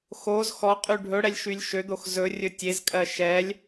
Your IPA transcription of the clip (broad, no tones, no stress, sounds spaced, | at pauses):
x o z x ɔ qʼ y ɖʱ ɵ ɽ ɛ lʲ ʃ y lʲ ʃ ø d̪ o x z ɵ rʲ ɵ tʲ e z kʼ ɜ ʃ ɛ lʲ